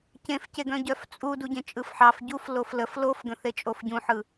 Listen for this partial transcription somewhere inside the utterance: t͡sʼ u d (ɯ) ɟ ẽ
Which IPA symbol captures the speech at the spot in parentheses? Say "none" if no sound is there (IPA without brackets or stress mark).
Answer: u